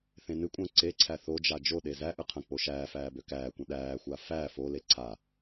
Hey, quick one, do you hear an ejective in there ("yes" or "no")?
yes